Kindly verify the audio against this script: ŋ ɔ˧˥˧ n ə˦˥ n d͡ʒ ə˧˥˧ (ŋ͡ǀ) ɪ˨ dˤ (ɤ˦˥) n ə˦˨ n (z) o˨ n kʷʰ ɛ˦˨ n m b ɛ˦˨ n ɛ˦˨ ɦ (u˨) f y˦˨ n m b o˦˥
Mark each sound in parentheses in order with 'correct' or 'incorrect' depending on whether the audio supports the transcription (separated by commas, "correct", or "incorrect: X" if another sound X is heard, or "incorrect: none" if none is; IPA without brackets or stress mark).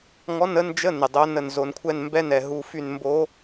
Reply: incorrect: n, incorrect: o˦˥, correct, incorrect: u˧˥˧